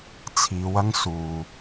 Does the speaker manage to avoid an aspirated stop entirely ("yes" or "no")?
no